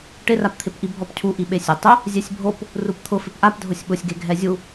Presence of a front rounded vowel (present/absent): absent